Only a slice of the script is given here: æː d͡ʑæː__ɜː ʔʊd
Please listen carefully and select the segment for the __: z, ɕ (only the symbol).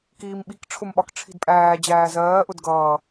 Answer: z